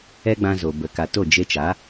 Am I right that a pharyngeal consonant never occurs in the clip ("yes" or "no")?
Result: yes